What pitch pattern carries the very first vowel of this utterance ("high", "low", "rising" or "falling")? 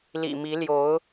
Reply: low